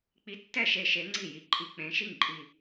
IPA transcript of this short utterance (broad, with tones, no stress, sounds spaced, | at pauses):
k͡p i˧ tː ɛ˥˨ ʃ e˧ ʃ e˧˥ ŋ͡ǀ i˥˨ j i˧ ǃʼ i˧ k͡p ẽ˧˥ ʃ i˥˨ ŋ ǃʼ i˧